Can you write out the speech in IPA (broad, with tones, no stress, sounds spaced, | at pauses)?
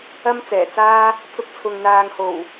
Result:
ɐ˥ m t͡s ɛː˨˩ t͡s aː˥ | t͡s ʊ˧ k̚ t͡sʰ ʊ˨ ŋ n̪ aː˨ ŋ h o˨˩ w